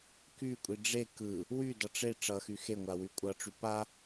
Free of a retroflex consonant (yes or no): no